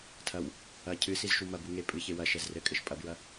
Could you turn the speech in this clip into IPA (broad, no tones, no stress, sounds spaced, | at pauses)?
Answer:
tʰ ɐ w | ɐ cʰ ɨ s i z ʃ u m ɐ b u ŋ e pʼ ɨ ç e w ɐ ʃ ɛ z r ɘ kʼ ɘ ʃ pʼ ɐ b ɹ ɐ